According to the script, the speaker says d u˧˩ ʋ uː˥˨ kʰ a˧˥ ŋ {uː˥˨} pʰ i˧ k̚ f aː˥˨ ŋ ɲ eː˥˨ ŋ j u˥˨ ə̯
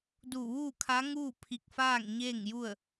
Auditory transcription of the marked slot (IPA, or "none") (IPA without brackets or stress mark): uː˥˨